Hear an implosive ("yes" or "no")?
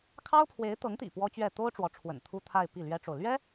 no